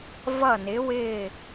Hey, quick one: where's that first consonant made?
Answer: lips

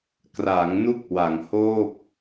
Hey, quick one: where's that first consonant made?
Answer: velum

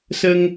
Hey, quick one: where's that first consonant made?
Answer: tongue tip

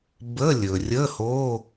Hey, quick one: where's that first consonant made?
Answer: lips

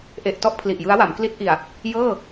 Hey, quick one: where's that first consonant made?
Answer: throat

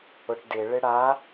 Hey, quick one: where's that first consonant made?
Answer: retroflex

